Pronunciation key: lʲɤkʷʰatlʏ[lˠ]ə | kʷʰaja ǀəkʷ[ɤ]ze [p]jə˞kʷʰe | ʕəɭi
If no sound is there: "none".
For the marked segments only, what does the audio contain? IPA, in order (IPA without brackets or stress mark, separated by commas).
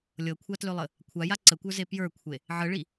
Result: lˠ, ə˞, p